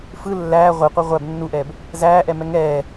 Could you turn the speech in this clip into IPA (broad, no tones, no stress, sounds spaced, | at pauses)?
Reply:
f ɯ lː æː ʁʷ ɯ qʷ æ ʁʷ æ b nː u ʔ ɛː b | z æː ʔ ɛ m ɛ ŋ ɛː